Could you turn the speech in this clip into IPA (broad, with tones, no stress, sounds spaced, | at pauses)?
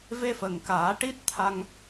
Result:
v e˧ f ə˨˩ ŋ k aː˨˩˦ ʈ i˦˥ t̚ t̪ʰ a˧ ŋ